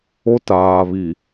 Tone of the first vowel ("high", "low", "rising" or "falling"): high